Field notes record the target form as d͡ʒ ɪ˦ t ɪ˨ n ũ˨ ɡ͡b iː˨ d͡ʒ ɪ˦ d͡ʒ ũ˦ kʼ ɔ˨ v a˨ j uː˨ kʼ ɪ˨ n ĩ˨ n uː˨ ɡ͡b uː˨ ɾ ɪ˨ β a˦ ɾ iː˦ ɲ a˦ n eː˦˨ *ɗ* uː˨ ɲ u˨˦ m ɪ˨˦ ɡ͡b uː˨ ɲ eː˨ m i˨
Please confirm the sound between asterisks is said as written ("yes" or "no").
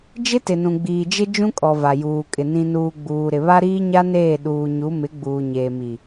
yes